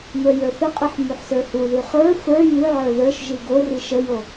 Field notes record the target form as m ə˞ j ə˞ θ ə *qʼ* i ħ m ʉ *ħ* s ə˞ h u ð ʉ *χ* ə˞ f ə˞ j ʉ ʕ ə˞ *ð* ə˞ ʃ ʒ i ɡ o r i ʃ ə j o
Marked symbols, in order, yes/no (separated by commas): yes, yes, yes, yes